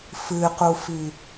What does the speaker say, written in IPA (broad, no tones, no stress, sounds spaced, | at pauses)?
f ɨ q u f i